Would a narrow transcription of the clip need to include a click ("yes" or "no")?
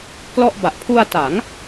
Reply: no